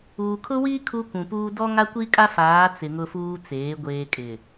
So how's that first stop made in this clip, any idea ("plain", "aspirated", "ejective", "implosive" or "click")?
aspirated